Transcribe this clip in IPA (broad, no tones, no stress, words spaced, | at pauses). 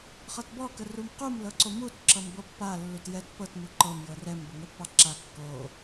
χʌtbɔ kərumqum lɤǀomut ǁʌmbɤpːa lːutjɛt pɤt muǃɤm jɤrɛm bəŋɛpːɑǁa kːo